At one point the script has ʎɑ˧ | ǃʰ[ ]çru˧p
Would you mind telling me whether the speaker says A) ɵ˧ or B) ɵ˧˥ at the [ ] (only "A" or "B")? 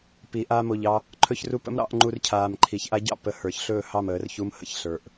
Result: A